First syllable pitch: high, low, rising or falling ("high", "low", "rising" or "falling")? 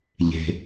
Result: low